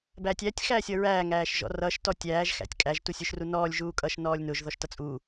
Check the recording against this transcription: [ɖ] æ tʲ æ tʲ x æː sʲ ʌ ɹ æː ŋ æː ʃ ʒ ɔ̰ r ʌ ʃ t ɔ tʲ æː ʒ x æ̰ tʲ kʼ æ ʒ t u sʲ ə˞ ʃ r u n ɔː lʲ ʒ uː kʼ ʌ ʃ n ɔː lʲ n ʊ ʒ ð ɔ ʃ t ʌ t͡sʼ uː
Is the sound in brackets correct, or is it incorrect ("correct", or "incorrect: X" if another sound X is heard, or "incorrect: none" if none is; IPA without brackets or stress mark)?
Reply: incorrect: b